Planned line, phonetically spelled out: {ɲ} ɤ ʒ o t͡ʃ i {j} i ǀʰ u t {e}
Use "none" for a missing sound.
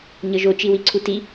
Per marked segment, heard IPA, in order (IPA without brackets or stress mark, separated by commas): ɲ, w, i